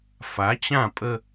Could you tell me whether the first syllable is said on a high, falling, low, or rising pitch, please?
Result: rising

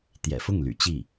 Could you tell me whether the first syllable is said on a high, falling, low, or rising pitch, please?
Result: low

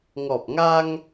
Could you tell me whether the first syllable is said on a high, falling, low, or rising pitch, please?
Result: low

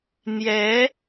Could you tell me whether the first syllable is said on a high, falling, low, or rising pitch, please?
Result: rising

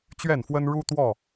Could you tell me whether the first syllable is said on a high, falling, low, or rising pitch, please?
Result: falling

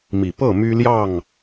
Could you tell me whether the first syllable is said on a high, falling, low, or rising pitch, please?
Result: low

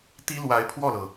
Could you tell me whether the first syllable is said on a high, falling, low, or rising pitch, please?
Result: high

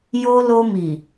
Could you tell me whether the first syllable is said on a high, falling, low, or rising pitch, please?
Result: high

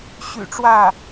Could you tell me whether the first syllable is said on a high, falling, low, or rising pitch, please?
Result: low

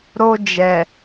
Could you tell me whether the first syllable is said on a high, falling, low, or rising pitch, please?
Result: high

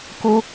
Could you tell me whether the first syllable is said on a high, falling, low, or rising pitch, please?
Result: high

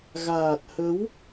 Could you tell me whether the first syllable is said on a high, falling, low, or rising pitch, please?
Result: low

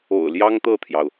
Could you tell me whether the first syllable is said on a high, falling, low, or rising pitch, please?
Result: low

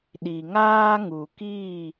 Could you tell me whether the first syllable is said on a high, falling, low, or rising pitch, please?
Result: low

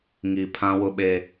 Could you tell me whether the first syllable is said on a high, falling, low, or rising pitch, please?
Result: low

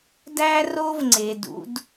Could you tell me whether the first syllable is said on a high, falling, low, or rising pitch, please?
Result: high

